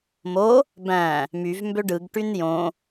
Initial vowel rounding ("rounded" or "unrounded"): rounded